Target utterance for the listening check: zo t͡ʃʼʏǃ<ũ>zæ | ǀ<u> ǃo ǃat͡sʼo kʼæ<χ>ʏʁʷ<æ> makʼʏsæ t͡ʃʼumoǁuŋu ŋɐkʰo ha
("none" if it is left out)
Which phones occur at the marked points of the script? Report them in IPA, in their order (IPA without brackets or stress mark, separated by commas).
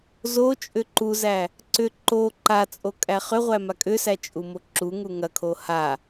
u, ʏ, χ, æ